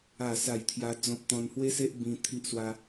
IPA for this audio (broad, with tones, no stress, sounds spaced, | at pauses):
a˥˧ s a˥˧ j t̪ʰ j a˦ d͡z ɔ̃˦ p̚ t̪ ɔ̃˧ n h w e˦ s e˦ ʔ b ĩ˧ t̪ʰ i˦ ʔ s w a˦